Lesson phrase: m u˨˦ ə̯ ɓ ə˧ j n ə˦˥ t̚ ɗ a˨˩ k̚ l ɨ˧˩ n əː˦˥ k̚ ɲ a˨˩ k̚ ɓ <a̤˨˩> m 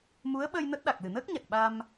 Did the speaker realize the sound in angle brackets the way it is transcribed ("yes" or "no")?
no